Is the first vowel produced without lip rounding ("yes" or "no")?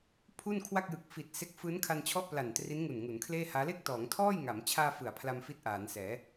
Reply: no